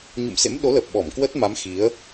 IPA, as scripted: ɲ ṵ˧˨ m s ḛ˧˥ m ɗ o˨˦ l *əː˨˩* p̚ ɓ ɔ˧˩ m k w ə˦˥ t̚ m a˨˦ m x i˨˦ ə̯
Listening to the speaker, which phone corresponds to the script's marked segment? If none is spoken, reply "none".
əː˨˩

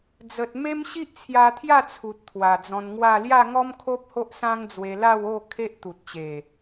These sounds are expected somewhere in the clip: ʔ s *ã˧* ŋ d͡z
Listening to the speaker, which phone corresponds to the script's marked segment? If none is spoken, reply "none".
ã˦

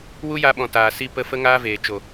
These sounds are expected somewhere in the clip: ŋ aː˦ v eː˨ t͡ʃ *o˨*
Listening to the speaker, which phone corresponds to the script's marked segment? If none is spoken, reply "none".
o˨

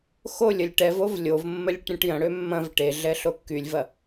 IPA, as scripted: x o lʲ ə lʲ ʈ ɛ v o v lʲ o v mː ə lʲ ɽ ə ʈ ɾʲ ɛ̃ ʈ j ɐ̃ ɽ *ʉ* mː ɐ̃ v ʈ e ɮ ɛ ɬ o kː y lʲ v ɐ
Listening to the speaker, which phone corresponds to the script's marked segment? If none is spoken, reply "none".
ø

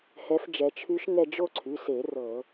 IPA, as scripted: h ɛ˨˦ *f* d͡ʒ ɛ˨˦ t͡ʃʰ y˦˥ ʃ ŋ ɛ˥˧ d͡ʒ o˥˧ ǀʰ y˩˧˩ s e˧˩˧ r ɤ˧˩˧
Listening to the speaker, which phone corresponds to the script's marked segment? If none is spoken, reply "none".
f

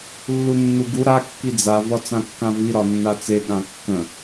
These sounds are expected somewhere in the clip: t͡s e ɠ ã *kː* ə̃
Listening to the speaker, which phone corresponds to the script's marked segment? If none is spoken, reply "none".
kː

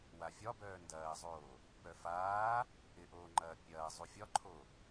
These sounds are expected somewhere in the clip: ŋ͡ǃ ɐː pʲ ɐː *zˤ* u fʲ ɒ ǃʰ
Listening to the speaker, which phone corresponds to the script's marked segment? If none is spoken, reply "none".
zˤ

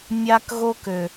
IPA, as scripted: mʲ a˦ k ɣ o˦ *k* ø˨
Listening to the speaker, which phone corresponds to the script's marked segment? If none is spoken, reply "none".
k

